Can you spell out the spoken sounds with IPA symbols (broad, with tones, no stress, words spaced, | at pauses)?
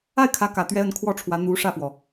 a˥˩ɪ̯kʰä˧˥kä˨˩t̪ɥɛ˧˥ ə˧˥nkʰwɔ˥˩ʈ͡ʂʰwä˧˥ n̪u˧˥ ʂä˥˩fwɔ˩